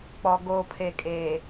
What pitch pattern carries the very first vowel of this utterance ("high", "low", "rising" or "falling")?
low